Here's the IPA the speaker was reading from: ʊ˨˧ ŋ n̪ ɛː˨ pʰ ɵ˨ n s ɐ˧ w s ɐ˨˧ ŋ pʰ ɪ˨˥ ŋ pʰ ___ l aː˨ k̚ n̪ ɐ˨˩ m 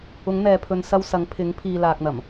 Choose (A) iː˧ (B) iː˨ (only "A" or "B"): B